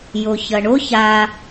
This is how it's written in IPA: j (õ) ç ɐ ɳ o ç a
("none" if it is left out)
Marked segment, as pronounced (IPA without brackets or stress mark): o